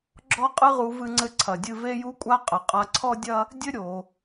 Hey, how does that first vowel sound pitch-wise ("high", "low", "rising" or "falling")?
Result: high